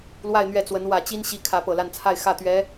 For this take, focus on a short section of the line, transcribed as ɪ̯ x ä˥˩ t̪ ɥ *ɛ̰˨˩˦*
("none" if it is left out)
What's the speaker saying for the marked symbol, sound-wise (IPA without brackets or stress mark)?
ɛ˧˥